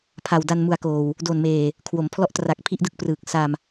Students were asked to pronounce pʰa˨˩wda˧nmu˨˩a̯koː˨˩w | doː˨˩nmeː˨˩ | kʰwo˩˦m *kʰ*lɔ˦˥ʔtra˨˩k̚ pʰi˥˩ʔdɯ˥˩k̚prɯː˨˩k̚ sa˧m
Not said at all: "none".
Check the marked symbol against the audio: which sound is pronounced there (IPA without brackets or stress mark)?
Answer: pʰ